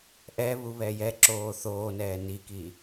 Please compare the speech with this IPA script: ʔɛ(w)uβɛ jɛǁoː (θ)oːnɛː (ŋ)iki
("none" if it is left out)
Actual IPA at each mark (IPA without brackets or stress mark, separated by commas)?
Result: β, θ, n